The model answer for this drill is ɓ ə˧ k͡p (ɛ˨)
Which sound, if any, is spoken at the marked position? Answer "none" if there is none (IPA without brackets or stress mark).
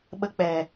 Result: ɛ˨